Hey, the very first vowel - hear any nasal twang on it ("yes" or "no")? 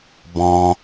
yes